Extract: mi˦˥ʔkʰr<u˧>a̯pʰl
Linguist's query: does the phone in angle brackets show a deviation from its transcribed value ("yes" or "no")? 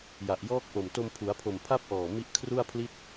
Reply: yes